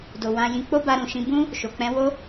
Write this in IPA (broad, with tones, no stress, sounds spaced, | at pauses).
d o˨ w ã˧ j ĩ˧ k͡p o˦ b a˧ ɾ ũ˨ ʃ ĩ˧ b ũ˦ | ʃ o˨ k͡p ɛ̃˧ w o˦